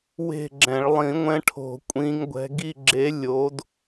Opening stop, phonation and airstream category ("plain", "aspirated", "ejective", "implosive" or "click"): click